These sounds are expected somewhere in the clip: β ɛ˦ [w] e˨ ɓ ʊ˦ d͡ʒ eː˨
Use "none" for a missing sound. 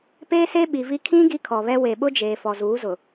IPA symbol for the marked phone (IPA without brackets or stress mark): w